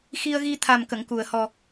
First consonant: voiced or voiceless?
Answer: voiceless